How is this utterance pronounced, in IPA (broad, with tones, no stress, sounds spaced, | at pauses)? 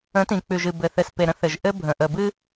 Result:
ə̃˨˦ t ĩ˨ k͡p ʉ˨ ʒ ɨ˨ b ɘ˨ θ ɘ˨ s p e˨ ɾ ə̃˦ θ ɘ˨ ʒ ʔ ɘ˦ bʱ ə̃˨ ʔ ə˨ b ɨ˦